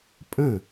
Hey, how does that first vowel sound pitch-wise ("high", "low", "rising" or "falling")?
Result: falling